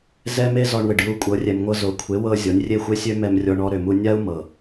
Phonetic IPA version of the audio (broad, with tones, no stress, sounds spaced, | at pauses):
z ɛ˦ m e˦ z ɔ˧ ɳ w ɪ˨ ɖ j u˧ kʷʼ ɤ˨˦ rʲ ɛ˨ m ŋʷ ɤ˧ z o˨˦ kʷʰ e˨˦ w ɤ˧ zʲ ɔ˨˦ nʲ rʲ e˦˨ xʷ e˦ sʲ ø˦ m ɛ˧ m rʲ ɔ˧ ɳ ɔ˧ ɾ ø˨ m u˧ nʲ a˦ u̯ m ɤ˨